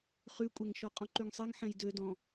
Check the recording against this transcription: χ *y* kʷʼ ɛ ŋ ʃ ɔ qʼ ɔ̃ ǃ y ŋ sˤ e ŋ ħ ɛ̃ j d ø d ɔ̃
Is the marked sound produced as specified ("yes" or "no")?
yes